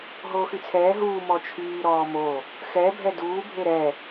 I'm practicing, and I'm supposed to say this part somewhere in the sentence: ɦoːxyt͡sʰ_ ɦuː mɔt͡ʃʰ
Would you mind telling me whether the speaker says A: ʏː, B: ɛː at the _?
B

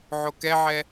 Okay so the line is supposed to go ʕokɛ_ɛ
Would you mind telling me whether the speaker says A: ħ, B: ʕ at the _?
B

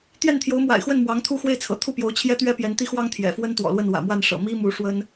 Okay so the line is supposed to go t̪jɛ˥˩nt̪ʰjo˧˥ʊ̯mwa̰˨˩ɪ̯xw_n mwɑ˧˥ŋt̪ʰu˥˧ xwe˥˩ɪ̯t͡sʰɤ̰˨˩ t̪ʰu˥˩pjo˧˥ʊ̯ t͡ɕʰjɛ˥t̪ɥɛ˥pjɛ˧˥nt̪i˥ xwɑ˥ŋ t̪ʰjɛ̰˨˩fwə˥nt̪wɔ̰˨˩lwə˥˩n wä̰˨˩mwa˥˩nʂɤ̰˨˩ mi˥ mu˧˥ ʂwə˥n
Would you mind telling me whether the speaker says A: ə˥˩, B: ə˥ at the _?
A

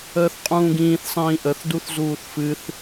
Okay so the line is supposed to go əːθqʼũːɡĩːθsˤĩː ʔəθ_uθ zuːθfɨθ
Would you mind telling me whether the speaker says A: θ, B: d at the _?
B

